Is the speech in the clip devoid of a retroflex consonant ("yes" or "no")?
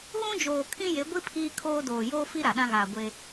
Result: yes